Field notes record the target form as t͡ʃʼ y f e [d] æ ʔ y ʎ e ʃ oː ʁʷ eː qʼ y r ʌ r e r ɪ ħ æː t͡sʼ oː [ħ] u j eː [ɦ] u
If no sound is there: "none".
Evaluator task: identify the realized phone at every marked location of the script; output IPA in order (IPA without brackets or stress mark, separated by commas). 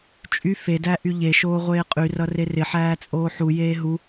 d, ħ, ɦ